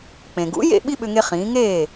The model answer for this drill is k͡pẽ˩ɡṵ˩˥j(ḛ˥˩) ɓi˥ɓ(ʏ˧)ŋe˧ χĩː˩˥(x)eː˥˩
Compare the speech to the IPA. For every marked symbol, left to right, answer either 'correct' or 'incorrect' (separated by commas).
correct, correct, incorrect